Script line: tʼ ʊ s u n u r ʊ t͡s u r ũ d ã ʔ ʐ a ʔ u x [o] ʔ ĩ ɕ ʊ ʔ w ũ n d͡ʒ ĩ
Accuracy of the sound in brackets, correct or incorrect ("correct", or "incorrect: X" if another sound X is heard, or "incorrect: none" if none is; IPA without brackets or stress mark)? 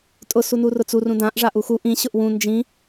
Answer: incorrect: u